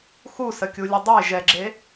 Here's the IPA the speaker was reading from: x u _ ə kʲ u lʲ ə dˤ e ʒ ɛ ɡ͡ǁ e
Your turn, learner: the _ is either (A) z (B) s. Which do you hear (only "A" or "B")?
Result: B